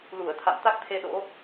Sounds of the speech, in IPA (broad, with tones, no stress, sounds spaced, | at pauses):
l u˧˩ ə̯ t̪ʰ a̰˧˨ m t̪ a˦˥ k̚ t̪ʰ e˧ ɗ o̰˧˥